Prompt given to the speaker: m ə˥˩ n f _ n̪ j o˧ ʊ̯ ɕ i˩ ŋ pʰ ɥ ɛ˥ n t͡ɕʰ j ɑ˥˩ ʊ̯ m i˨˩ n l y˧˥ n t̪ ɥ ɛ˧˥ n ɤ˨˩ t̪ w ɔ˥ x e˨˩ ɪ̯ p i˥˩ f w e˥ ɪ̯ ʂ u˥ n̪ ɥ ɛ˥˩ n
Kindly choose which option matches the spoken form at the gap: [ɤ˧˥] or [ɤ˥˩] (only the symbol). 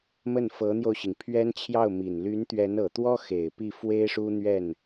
ɤ˧˥